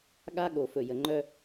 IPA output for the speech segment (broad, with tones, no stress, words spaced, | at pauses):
ɠa˦ ɠo˨fɵ˨ jə˨ŋ͡ǃœ˦